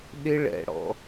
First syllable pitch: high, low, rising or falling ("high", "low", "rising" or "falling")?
high